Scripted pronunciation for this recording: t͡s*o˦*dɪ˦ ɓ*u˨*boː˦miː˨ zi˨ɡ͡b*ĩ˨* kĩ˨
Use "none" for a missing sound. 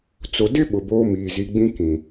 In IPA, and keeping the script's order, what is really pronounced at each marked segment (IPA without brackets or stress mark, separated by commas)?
o˨, ʊ˨, ĩ˦